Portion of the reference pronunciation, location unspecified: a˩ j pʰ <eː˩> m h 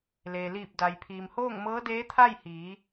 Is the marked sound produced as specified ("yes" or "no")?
no